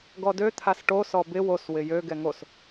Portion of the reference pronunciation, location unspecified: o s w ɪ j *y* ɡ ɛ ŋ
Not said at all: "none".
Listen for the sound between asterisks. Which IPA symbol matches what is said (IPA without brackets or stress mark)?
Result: ø